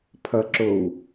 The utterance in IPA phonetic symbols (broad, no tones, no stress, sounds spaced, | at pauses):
pʰ ʌ ǁ o w